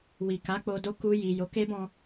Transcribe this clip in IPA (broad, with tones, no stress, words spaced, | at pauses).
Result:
wi˨ka˨˦ k͡po˧do˦ ku˧ji˨ jo˨˦ke˦bɔ̃˧